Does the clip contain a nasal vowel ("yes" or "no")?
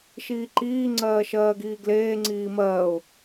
no